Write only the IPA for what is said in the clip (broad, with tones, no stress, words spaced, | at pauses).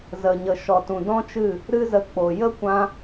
zə˨ɲə˨ ʃɔ˨tũ˨dɔ̃˦t͡ʃɨ˦˨ | ɾɨ˦zə˧k͡po˨ jə˦ kʷã˧